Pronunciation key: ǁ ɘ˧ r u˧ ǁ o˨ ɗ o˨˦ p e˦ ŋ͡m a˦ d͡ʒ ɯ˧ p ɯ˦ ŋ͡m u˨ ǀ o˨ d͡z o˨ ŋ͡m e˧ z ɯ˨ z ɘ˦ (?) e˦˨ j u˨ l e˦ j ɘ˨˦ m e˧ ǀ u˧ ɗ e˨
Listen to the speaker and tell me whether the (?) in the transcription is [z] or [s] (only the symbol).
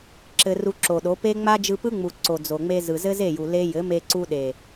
z